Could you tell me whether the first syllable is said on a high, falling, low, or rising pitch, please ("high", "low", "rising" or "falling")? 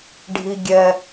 low